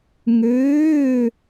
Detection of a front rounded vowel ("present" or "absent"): present